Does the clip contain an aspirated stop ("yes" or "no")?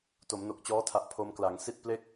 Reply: yes